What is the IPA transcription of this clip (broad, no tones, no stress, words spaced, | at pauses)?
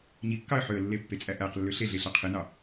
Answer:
ɲikːɑə̯ ħøə̯lːe pːet͡sʼæʔæqlːø ɬeɮe ɬɑqʰenɑ